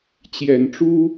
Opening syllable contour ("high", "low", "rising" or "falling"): low